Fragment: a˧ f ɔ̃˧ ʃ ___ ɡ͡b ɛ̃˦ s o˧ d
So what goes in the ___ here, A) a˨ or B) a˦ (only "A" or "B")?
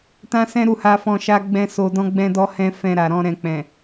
B